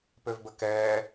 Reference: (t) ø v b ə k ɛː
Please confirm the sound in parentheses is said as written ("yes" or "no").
no